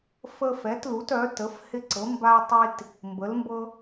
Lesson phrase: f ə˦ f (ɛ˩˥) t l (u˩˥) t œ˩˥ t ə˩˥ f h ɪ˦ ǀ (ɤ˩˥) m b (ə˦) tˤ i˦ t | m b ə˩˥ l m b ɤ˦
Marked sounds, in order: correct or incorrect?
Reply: correct, correct, correct, incorrect: a˦

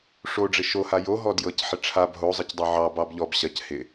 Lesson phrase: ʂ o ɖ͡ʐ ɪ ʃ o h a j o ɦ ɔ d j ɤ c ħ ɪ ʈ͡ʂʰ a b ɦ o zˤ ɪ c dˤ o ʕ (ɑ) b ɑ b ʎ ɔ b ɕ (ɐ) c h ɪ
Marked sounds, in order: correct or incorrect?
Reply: correct, correct

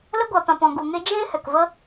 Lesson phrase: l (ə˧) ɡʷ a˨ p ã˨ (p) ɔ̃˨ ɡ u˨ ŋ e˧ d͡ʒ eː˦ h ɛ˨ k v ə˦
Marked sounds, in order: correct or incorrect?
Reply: correct, correct

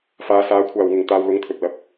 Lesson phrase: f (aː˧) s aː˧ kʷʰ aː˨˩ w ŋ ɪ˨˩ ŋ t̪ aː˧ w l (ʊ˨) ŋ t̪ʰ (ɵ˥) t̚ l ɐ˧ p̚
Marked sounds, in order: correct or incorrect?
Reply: incorrect: aː˨˧, incorrect: ʊ˨˥, incorrect: ɵ˨

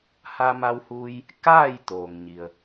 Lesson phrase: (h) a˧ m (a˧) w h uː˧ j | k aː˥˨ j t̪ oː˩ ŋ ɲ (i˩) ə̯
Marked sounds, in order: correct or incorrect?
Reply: correct, correct, correct

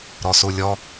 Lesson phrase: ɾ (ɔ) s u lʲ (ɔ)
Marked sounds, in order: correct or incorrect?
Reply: correct, correct

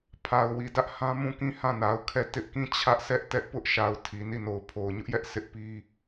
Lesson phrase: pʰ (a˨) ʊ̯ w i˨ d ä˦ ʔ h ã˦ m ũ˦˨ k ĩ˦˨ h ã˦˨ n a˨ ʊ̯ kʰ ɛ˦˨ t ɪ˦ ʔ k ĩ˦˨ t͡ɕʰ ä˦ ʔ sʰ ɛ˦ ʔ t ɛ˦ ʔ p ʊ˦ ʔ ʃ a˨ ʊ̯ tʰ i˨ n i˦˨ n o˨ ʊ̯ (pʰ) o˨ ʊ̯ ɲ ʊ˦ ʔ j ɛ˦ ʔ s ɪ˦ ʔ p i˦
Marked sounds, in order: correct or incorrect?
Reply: correct, correct

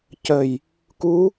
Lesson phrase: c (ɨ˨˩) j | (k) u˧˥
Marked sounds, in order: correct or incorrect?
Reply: incorrect: ə˨˩, correct

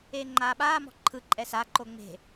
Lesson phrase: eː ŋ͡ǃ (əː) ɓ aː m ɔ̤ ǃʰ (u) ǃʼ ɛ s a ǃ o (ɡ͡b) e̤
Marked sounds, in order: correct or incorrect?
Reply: incorrect: aː, incorrect: ɯ, incorrect: ŋ͡m

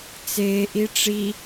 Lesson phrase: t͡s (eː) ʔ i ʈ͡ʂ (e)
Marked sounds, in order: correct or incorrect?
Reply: correct, incorrect: i

